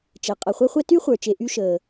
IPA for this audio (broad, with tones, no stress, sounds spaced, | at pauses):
t͡ʃ ɛ˩ qʼ ʌ˩ χʷ ɛ˦ χʷ ɛ˦ t y˥ χʷ ə˞˩ t͡ʃ e˨ ʔ y˦ ʃ əː˩